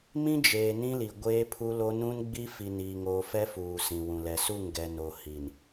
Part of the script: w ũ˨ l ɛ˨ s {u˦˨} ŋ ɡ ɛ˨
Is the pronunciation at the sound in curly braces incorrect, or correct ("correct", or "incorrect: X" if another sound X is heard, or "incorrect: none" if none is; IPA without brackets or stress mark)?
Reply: correct